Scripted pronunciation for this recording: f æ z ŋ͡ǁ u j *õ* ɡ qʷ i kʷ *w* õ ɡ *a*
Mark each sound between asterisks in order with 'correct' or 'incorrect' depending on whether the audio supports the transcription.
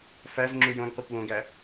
correct, correct, incorrect: æ

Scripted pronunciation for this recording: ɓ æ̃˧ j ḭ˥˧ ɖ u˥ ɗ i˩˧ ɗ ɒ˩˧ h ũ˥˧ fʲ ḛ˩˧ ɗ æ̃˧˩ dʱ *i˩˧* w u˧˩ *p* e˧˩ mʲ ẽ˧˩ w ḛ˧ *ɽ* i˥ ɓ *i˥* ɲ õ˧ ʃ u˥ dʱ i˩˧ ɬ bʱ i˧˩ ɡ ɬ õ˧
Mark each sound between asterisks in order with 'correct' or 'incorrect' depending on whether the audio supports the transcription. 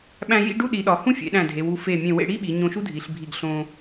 incorrect: e˩˧, incorrect: f, correct, incorrect: i˩˧

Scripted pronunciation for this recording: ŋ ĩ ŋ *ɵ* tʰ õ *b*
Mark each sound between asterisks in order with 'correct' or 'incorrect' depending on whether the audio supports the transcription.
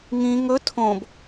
correct, correct

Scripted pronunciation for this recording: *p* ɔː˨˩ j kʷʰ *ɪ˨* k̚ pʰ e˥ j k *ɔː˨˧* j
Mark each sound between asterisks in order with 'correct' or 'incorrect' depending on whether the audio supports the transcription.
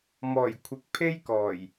incorrect: m, correct, incorrect: ɔː˨˩

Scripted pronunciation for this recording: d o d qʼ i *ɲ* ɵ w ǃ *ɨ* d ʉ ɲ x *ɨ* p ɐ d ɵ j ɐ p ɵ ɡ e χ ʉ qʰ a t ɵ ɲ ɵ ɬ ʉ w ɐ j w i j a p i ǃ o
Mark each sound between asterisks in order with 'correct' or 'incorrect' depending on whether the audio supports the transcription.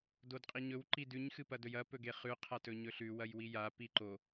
correct, incorrect: i, correct

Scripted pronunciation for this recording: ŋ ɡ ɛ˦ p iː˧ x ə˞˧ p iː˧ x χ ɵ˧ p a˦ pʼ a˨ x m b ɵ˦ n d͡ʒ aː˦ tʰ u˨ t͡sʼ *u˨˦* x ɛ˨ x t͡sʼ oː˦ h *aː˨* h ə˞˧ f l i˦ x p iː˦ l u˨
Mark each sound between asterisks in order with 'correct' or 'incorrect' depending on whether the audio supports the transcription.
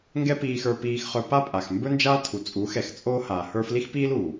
correct, correct

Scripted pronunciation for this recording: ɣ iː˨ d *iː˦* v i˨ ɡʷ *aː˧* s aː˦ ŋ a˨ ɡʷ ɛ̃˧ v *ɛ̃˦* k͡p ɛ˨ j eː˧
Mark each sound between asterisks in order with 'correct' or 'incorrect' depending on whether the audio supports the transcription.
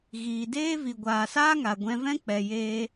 incorrect: eː˦, incorrect: aː˨, correct

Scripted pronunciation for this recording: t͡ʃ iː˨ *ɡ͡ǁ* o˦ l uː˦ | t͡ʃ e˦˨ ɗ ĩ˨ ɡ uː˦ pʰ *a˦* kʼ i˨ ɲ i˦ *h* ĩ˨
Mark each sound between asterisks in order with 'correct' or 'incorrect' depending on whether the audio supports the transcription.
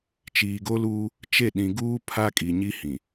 incorrect: ɡ, correct, correct

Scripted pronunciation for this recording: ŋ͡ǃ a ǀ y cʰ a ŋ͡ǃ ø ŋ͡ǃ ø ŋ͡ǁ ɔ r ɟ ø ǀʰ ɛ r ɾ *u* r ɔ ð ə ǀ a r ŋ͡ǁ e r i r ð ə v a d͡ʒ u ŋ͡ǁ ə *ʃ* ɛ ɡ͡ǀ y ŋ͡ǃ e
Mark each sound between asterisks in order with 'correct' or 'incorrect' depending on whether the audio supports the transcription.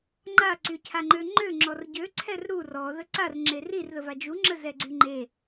correct, incorrect: z

